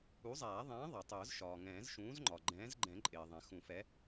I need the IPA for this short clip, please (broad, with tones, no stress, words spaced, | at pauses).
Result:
u˨˥zˤæː˨˩˦ ðˤɛ̃ː˨˥ ðˤæ˩tˤʊː˨˩˦z ʃɒː˩ŋɛ̃ː˨˩˦zʃũː˨˥z ŋ͡ǃɒ˩ ɡ͡ǃɛ̃ː˨˥zɡ͡ǃɛ̃˨˩˦ ǃʼɪː˩ðˤɛ̃˩ xũ˨˩˦fɛ˨˥